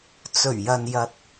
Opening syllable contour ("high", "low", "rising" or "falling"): low